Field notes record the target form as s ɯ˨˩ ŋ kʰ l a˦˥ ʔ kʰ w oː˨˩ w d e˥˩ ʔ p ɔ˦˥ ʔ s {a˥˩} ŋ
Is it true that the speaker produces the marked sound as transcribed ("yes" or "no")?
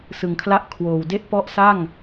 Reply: yes